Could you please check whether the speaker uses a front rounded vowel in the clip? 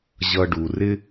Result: no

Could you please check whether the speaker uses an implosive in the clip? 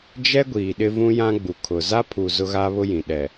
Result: yes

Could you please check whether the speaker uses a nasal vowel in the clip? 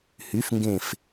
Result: yes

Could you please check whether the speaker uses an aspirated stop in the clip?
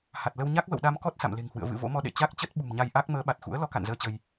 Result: no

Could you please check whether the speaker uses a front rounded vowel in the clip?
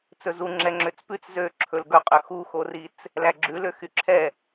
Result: yes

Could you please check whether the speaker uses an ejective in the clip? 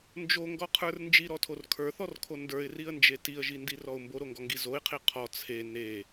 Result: no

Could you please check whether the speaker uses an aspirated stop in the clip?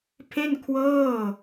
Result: yes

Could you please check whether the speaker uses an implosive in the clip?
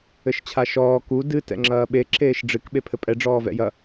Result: yes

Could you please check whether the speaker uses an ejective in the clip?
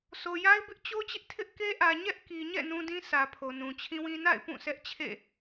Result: no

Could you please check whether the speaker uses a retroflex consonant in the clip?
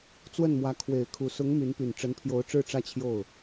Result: yes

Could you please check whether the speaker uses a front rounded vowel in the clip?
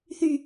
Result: yes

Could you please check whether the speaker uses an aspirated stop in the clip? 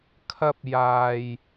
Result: yes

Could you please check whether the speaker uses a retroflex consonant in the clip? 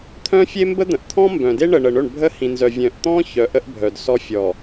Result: yes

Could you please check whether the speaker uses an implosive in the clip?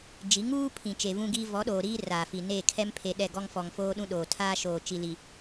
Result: yes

